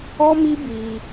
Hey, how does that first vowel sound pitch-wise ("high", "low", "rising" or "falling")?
high